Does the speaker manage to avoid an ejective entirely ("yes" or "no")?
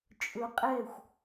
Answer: no